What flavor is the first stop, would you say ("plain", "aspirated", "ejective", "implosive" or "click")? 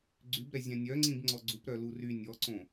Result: click